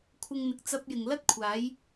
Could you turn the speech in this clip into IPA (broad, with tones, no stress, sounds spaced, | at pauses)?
kʷʰ ɪ˧ ŋ n̪ ɪ˨ k̚ t͡s ɐ˧ p̚ j ɪ˨ ŋ l ɐ˥ t̚ kʷʰ aː˨˧ j